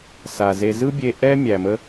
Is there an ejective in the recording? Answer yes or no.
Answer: no